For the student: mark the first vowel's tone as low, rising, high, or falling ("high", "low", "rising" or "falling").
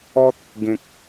high